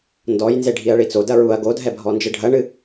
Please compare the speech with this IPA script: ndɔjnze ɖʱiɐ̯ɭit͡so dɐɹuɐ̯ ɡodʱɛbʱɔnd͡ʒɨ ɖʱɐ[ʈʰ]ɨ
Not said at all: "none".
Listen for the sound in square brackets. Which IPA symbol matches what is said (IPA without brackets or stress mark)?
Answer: ɳ